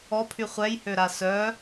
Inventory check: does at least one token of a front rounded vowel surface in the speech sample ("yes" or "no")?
yes